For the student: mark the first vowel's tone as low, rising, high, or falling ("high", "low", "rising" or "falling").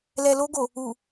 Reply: low